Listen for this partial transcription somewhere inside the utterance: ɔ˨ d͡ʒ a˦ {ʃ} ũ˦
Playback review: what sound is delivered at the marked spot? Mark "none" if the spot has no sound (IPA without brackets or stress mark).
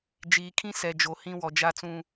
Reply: t͡s